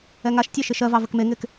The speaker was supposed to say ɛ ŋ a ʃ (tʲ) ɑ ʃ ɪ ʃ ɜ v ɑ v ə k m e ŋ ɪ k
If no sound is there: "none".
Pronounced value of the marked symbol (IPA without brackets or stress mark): tʲ